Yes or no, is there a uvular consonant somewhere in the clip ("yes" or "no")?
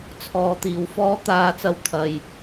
no